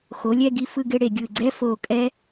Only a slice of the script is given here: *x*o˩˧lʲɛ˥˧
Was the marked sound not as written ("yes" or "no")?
no